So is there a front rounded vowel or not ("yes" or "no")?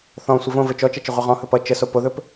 no